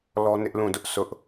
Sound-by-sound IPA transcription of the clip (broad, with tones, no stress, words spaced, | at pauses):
lɔ˦nɪ˦ʔlũ˦˨dʊ˦ʔ sʊ˦ʔ